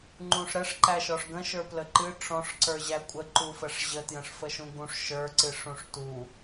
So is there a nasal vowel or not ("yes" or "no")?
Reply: yes